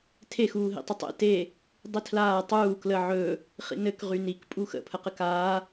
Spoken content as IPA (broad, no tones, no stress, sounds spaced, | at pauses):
tʰ e x uː ɦ ḭ tˤ ə tˤ ḛ t e | dˤ i tʰ l aː tˤ uː k l ə ʕ ɵ | χ ḭ n ɘ k ʁ y n i k pʼ u x ə̰ pʰ ə q ɘ k aː